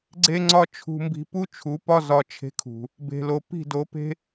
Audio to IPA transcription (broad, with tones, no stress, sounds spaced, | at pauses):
ɡ͡ǀ e˦ ŋ͡ǀ ɒ˦ t͡ʃʰ ṳ˧ m b i̤˧ p u˦ t͡ʃʰ u˨˦ p ɒ˦ z ɒ˧ t͡ʃʰ e̤˧ kʰ ṳ˨ | b e̤˨ l o˨ p i̤˦˨ d o˨˦ p e̤˦